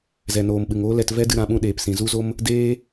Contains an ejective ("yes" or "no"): no